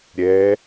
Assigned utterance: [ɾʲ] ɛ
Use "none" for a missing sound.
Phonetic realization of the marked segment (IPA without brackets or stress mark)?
ɾʲ